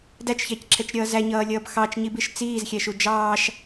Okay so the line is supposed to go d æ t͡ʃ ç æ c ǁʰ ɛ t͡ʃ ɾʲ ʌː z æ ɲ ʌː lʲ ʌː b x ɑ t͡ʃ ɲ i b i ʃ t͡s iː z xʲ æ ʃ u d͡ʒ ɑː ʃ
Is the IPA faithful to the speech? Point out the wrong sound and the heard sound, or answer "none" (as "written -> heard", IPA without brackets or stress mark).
none